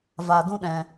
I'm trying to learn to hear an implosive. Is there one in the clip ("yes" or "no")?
yes